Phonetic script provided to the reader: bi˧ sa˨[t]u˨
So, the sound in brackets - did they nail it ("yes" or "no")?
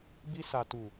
yes